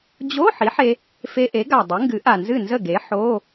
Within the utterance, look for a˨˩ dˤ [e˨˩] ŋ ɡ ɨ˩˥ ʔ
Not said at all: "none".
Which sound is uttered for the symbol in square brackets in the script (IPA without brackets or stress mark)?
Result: e˩˥